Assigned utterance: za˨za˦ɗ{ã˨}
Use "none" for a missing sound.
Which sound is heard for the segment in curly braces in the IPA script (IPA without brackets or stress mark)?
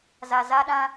ã˦